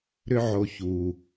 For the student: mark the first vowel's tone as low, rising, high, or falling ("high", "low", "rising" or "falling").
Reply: high